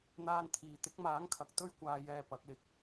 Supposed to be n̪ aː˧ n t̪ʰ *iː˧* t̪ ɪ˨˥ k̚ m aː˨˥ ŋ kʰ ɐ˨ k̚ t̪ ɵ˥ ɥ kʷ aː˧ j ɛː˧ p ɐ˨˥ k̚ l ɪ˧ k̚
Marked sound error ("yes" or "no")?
yes